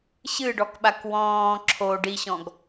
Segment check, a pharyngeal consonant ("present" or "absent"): absent